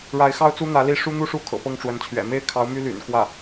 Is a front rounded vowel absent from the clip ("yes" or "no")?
no